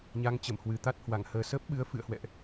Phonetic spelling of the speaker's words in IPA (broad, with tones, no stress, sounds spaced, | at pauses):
ɲ a˨˦ ŋ t͡ɕ ə˧˩ m h w ɨ˨˩ t̪ a˦˥ t̚ h w a˧˩ ŋ h əː˨˩ s əː˦˥ p̚ ɓ ɨ˨˦ ə̯ f ɨ̰˧˨ ə̯ h w ɛ̰˧˨ ʔ